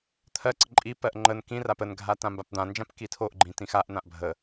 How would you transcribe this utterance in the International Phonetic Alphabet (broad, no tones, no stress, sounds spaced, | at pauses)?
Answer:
t̪ʰ ɜ ǀ ə ǃʼ i p ɜ ʔ ŋ͡ǃ ə n k ĩ r a p ə n ɡʱ a t ã m b a p d̪ ã n d͡ʒ ã p k i tʰ o ʔ ɡ͡ǃ ĩ t ĩ x a ʔ n̪ ã ʔ bʱ ə